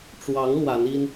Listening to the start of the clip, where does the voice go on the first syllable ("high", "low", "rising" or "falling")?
rising